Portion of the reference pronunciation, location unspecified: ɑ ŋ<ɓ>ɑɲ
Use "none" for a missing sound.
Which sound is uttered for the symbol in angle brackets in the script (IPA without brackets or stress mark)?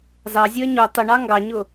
ɡ